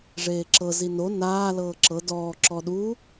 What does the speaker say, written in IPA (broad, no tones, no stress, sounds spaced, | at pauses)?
ʐ eː ǁ ɤ z i n o n aː l ɤː ǁ ɤ d ɔː ǁ ɔ ɗ u